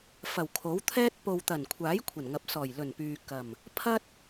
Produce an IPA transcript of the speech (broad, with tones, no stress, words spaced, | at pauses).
fɐ˨˩wkʰo˨˥wt̪ʰɛː˥t̚ po˨wt̪ɐ˨˩nkʷʰaː˨˥j kʷʰɐ˨˩nŋɐ˨p̚ sɔː˨˩jlɵ˨˩npyː˨ kɐ˨˩m | pʰɐ˥t̚